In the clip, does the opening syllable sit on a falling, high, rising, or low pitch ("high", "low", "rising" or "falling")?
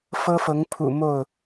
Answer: high